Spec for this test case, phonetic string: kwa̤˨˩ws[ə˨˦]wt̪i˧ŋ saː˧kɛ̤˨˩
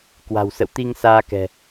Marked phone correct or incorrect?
incorrect: ə̰˧˨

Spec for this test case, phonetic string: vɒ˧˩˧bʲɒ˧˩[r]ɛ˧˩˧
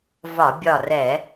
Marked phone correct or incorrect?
correct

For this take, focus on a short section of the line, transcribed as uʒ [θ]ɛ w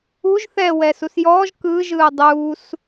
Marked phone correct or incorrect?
correct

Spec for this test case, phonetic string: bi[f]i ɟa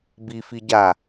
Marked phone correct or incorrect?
correct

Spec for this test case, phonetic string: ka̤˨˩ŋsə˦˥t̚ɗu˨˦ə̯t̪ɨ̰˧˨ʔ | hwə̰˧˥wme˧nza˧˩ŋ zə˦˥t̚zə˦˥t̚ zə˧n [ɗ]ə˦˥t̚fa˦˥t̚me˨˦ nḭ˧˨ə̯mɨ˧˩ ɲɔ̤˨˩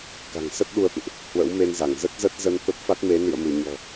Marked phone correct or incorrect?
incorrect: t̪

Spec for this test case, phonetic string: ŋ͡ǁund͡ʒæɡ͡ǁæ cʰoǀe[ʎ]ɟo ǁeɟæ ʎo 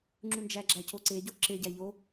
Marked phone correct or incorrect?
incorrect: none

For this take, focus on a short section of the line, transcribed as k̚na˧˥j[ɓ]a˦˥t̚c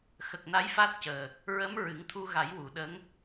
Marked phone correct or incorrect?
incorrect: f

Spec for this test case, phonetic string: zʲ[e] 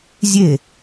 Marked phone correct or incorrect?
correct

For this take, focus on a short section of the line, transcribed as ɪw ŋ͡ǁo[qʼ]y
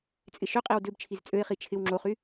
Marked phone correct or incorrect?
incorrect: χ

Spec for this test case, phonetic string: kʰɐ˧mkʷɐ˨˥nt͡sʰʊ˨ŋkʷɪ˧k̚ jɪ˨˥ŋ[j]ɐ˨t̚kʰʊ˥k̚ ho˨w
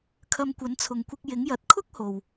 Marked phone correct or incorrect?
correct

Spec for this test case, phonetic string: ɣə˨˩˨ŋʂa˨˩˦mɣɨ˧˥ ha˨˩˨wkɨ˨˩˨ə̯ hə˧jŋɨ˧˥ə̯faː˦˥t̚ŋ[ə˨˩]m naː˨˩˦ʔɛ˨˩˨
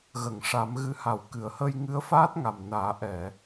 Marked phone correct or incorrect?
incorrect: a˨˩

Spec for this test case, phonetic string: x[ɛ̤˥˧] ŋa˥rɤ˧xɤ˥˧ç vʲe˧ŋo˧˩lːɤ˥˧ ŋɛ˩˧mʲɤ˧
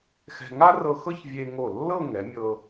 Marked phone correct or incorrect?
incorrect: ɛ̤˧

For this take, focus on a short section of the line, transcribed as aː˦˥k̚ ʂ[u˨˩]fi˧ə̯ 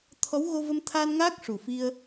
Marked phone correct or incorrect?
correct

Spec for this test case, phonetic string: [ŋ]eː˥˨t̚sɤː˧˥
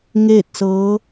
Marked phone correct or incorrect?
correct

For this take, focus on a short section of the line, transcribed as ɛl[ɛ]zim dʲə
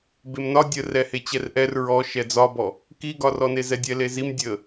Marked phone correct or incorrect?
incorrect: e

